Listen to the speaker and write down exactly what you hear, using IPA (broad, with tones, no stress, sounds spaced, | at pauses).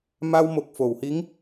m a˧ w m o˨˩ k̚ f o˨˩˨ w h i˧˥ ŋ